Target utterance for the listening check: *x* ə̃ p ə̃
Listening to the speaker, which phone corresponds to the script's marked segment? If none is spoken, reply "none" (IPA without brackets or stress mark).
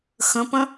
x